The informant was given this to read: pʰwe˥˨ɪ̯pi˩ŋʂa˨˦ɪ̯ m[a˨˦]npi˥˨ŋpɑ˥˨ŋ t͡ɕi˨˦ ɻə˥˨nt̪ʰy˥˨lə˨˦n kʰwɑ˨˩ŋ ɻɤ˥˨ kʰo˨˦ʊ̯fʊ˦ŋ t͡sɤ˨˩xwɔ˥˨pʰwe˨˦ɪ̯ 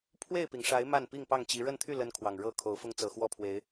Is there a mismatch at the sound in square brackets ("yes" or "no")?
yes